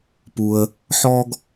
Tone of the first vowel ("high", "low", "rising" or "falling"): low